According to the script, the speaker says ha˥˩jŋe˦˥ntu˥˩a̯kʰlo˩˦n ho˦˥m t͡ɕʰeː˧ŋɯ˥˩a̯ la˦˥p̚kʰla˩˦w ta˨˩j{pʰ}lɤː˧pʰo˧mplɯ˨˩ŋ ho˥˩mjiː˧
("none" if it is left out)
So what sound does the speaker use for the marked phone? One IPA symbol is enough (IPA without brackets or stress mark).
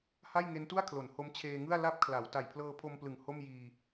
pʰ